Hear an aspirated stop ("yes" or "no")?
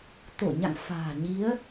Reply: no